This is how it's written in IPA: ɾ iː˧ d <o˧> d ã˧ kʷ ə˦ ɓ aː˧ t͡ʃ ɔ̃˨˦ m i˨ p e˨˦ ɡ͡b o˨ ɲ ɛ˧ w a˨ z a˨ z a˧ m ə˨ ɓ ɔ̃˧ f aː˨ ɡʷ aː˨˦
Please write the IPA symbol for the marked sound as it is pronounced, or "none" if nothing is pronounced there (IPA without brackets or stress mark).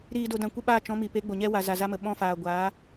o˧